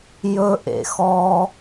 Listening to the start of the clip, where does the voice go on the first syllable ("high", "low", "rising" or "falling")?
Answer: high